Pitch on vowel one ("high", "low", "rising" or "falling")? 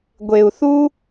low